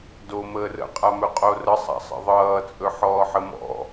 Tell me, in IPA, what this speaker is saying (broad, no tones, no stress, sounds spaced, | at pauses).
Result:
d o m əː r ə̰ qʼ a m ɵ qʼ o r ə sˤ a̰ sˤ ə̰ ðˤ ʌː t͡sʼ ɵ ħ ɔː ħ ə m ɔ̰